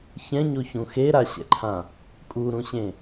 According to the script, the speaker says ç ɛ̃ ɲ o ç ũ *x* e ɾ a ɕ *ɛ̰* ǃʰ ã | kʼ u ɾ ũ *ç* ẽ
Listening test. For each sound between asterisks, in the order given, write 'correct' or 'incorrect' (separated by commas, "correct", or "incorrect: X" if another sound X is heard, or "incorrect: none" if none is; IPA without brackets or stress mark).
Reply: correct, correct, incorrect: ɕ